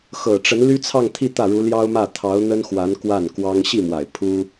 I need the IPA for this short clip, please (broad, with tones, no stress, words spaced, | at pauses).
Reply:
xɤ˨˩ʈ͡ʂə˧˥n ly˥t͡sʰɑ˥˧ŋt̪ʰi˥˧ t̪ä˥˩ɻu˧˥ljɑ˥ʊ̯mä˥˩ t̪ʰɑ˧˥ʊ̯n̪ə˥nxwa˧˥n kwa˥˩nkwɑ˥ŋ ɕi˥˩mwa˨˩ɪ̯ pʰu˥